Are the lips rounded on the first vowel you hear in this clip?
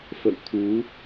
no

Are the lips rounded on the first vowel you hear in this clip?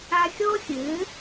no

